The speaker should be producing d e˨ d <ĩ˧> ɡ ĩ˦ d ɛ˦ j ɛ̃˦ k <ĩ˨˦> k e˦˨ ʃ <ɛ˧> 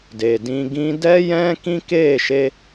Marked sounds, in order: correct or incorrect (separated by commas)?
correct, incorrect, incorrect